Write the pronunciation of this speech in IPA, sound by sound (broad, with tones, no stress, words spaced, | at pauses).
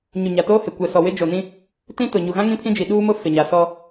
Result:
ɲu˨ɲa˨toː˦hɪ˨ kʷɛ˨sɔ˨ wɪ˦d͡ʒo˨nĩ˦ | tĩ˦tʊ˨ ɲu˨ɣã˦ ŋĩ˦pʰĩ˦d͡ʒi˨ ɗuː˦ mʊ˦ fɪ˨ɲa˨ sɔ˦